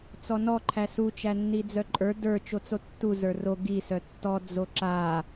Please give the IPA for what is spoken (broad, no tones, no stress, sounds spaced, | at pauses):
t͡s ɔ n ɔ ǃʰ æ s u t͡ʃ æ nː i d͡z œ ǃʼ ə˞ d ə˞ t͡ʃ o t͡s o tː u z ə˞ r o ɡ i s œ tː ɔ d͡z o ǁ a